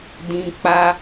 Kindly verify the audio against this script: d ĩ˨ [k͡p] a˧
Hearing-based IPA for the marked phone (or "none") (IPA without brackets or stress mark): k͡p